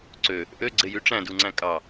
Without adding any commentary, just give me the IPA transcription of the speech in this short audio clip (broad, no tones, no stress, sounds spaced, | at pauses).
ǀ ø | ʔ ø ɡ͡ǀ e j y ʈ͡ʂ æ̃ d u ŋ͡ǀ æ̃ kʼ ɑ